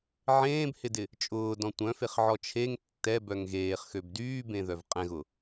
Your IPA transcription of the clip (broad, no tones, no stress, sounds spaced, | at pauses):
ʕ ẽː b h ɪ d ɪ | t͡ʃʼ ʊː d ɔ̃ tʷ œ̃ f e χ ʕ ɔ t͡ʃʰ e ŋ tː ɛ b œ ŋ ɣ eː χ x ø b d yː b ẽ ð œ v qʼ ɛ̃ ɣ ʊ